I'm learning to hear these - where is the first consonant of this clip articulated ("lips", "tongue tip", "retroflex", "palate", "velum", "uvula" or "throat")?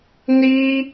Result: tongue tip